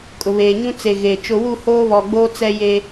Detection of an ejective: present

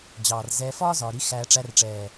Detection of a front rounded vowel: absent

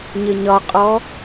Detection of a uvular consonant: present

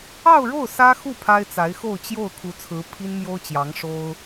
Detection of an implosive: absent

